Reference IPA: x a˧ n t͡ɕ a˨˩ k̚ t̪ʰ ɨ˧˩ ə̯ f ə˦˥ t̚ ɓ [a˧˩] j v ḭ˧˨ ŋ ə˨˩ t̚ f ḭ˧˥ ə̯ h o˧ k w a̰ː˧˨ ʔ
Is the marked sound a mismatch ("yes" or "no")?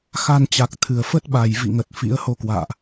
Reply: no